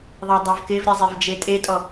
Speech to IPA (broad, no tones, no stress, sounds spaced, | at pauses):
ðˤ a dˤ a v k ɪ v ɾʲ ɛ zˤ e v d͡ʒ e tʼ e tʼ ɔ